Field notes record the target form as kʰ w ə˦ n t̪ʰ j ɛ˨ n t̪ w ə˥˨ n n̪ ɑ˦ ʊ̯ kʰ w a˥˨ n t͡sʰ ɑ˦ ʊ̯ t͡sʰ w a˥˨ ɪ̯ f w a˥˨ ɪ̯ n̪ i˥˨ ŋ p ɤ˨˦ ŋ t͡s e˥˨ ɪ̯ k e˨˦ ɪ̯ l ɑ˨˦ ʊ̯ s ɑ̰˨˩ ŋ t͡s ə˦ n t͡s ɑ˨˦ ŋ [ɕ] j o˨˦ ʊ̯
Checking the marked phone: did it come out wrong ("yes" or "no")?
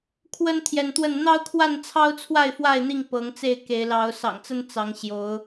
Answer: no